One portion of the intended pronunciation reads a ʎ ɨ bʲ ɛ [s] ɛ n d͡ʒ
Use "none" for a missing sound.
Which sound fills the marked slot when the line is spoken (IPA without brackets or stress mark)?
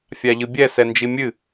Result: s